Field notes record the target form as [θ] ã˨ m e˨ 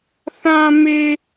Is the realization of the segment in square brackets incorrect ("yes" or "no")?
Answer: no